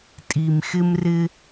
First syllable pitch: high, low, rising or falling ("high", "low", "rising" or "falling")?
low